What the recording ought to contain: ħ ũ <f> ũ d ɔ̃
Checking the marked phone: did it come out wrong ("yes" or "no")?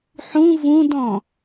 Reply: yes